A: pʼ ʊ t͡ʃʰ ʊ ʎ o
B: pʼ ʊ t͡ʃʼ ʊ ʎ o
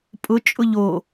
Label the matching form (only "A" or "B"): B